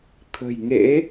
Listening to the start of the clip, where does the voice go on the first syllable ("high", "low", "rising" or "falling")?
low